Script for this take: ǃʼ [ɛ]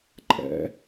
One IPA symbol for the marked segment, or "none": ɛ̰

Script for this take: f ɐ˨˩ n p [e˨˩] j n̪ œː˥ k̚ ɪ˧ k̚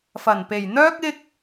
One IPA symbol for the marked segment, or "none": e˨˩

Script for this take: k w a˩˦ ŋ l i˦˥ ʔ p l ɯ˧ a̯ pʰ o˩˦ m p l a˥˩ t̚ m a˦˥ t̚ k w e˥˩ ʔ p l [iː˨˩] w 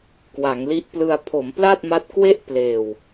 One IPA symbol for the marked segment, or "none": eː˨˩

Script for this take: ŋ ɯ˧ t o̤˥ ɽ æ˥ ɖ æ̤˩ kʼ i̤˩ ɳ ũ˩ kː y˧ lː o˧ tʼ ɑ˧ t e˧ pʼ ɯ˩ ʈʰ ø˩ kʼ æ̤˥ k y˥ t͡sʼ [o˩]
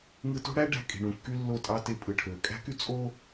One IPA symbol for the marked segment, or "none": o˥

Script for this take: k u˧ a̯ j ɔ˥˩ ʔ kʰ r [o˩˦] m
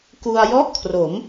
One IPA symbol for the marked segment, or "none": o˩˦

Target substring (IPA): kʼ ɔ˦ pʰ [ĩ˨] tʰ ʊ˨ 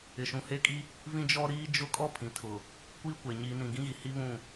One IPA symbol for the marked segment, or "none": ĩ˨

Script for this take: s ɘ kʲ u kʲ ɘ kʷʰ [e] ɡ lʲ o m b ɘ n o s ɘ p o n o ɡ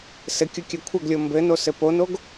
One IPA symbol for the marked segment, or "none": ɘ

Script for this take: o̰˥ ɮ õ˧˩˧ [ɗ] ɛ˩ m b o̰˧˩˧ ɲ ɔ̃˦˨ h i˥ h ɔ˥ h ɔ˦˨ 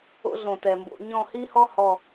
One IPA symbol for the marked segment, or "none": t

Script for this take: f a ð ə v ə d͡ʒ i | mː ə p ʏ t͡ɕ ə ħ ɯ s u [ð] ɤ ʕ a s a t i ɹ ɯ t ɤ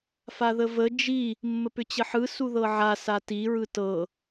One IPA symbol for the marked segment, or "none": ð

